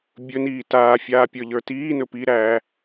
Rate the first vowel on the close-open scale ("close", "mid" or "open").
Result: mid